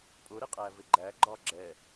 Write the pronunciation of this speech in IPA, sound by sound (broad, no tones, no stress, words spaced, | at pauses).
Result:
pʼʊɾɪqʼævɪ ɡ͡ǃæɡ͡ǃɒ ɡ͡ǁɛ